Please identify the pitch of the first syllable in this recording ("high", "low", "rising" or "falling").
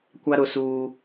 high